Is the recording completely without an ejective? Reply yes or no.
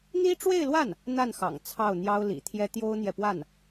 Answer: yes